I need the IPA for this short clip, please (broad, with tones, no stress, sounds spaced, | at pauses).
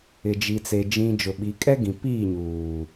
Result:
ɪ˨ d͡ʒ i˨ t͡s e˨ d͡ʒ ĩ˨ d͡ʒ ʊ˨ ɓ i˨˦ kʼ ɛ˦ ɡ ĩ˨ p iː˦˨ ɲ uː˨